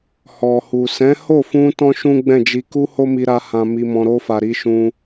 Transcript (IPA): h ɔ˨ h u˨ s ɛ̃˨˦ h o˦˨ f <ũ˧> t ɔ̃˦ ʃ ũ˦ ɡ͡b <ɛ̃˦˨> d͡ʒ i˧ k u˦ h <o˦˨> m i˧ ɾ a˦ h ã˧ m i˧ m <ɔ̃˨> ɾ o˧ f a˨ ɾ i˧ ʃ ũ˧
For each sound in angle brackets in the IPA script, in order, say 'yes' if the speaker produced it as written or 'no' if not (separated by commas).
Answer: yes, yes, no, no